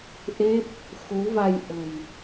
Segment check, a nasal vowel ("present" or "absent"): absent